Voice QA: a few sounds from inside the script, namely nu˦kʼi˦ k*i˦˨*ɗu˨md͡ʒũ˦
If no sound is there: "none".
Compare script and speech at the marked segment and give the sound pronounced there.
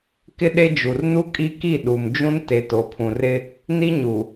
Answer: i˦˨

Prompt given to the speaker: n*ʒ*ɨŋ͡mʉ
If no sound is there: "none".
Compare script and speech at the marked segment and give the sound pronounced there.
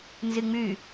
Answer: z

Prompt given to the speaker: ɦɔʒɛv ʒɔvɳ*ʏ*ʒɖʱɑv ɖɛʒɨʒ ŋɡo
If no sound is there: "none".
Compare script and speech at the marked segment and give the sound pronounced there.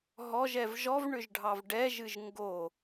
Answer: ʏ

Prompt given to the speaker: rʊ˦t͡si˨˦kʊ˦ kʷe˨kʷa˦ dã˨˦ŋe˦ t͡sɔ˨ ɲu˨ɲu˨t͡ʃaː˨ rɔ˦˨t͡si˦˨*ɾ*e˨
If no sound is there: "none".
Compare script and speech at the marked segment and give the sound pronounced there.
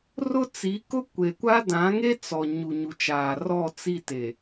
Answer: t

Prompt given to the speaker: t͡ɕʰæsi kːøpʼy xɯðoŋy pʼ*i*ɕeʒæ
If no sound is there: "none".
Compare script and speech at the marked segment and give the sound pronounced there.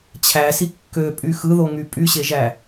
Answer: y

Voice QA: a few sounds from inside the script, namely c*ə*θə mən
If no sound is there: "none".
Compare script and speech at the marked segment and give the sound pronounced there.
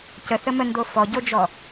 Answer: ə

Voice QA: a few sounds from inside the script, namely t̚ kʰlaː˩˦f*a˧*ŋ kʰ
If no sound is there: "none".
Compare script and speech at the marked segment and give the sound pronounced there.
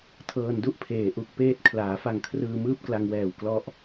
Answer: a˧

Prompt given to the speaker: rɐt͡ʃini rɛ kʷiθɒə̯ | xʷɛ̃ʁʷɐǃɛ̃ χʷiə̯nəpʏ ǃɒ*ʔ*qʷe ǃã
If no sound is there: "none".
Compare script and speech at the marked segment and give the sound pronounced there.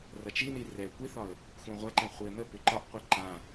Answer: ʔ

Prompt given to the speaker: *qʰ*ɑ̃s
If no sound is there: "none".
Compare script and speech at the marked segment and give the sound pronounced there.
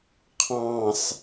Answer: qʰ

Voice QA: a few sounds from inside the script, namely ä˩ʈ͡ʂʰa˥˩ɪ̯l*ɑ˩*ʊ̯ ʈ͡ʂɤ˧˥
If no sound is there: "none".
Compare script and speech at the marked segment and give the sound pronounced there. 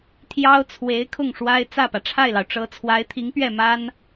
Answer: ɑ˩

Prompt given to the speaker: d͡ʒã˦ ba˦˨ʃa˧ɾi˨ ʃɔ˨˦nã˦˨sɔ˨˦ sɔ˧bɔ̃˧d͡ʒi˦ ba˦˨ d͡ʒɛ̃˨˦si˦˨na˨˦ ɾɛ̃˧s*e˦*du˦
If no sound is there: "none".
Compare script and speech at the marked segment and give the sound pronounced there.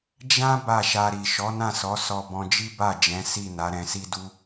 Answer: i˦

